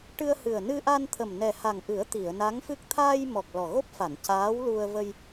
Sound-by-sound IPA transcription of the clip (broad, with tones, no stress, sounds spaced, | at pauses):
ʈ ɨ˧ ə̯ h ɨ˨˩ ə̯ n ɨ˧ ʔ a˧ n t̪ʰ ə˨˩ m n ɛ˨˩ h a˨˩ ŋ ʔ ɨ˨˩˦ ə̯ t̪ i˨˩˨ ə̯ n a˧˥ ŋ f ɨ˦˥ k̚ t̪ʰ aː˧ j m ɔ˨˩ k̚ l ɔ˨˩ ɣ o˦˥ p̚ f a˨˩˨ n c aː˧˥ w l u˧ ə̯ v ə˧ j